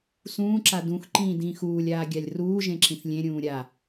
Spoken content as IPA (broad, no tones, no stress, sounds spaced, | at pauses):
s ũː ǁ a d ũ x ǃ ĩː d ĩː x uː lʲ aː ɡʲ a lʲ r uː ʒ ẽ ǁ ĩ θ lʲ ẽ ɾʲ ũː ɾʲ a